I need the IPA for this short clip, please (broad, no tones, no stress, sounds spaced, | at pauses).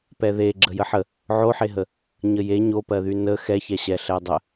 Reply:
p ɛ ð e ɡ͡ǁ ə j ə ħ ə | ʕ o ħ e ɦ ə | ɲ ə j e ɲ o p ɜ ð y n ə x ɛ ç ɛ ɕ ɛ ɬ ɛ dˤ ə